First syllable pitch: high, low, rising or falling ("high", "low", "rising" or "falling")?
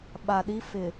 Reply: low